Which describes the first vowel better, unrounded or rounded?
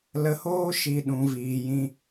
unrounded